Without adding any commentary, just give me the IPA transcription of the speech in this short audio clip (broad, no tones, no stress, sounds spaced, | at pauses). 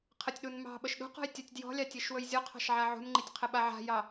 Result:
qʰ ə tʲ ɗ u n m ɑ̤ ɓ ə ʃ ɗ ṳ q ɔ̤ j tʲ a tʲ d j ɔ̤ lʲ ɑ tʲ e ʃ w ɵ j zʲ ɔ qʰ ɑ̤ ʃ ʕ a ʕ ṳ n ŋ͡ǃ i tʲ qʰ ə ɓ a ʕ a̤ j ɑ